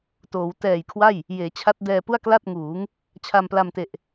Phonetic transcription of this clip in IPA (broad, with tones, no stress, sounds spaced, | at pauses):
t oː˩˦ w t ɛː˨˩ j kʰ w a˥˩ j | j eː˩˦ t͡ɕʰ a˦˥ t̚ d ɛː˧ p u˥˩ a̯ k l a˥˩ t̚ ŋ uː˩˦ ŋ | t͡ɕʰ a˧ m p l a˧ m t e˨˩ ʔ